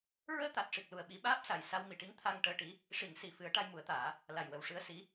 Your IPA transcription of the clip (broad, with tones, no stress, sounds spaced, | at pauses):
ɹ əː˧ t̪ a˨˩ t̚ ʂ i˨˩ k̚ l u˨˩ ə̯ ɓ i˨˩˦ ɓ aː˦˥ p̚ s a˨˩ j s a˧ w m i˨˩˨ ʈ i˧˥ ŋ t̪ʰ a˧ ŋ ʈ əː˧ ʈ i˧˥ | ʂ i˨˩˨ ŋ s i˨˩˨ f ɨ˨˩˦ ə̯ ʈ a˧ j m u˨˩˦ ə̯ t̪ aː˨˩˦ | l a˨˩ j w ə˨˩ w ʂ ɨ˧ ə̯ s i˧˥